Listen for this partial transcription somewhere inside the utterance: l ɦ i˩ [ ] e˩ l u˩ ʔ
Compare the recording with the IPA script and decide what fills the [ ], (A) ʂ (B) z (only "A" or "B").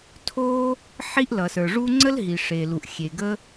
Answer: A